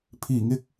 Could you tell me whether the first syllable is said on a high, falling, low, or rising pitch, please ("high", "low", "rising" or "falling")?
low